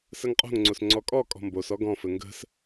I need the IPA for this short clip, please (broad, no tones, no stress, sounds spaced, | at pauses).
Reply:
s ə ŋ qʼ o̤ ŋ ŋ͡ǀ o s ŋ͡ǀ ɔ kʼ ɔ kʼ ɔ̤ m b o s ɔ ɡ ɔ̃ f ɘ ŋ ɡ ə̤ s